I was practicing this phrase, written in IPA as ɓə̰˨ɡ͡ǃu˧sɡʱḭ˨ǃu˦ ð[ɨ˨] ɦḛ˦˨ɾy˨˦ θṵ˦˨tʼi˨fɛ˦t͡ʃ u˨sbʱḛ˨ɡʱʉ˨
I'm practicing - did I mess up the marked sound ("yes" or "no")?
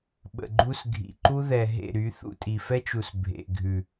yes